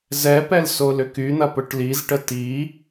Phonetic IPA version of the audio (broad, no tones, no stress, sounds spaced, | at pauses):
z ɛ p ɛ l s o l ʏ k y n̪ ɐ p ʊ ʈ l i z ʈ ə t i